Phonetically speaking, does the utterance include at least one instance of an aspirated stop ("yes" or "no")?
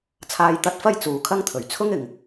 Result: yes